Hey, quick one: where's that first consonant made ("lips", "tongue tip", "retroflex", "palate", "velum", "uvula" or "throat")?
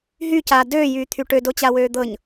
throat